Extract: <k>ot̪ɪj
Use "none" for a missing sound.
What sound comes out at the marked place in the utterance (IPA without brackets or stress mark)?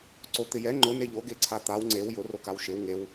ǀ